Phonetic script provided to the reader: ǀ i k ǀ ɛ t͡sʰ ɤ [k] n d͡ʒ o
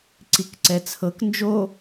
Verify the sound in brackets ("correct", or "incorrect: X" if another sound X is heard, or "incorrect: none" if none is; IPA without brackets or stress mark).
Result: correct